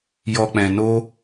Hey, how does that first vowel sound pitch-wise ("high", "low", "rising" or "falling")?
low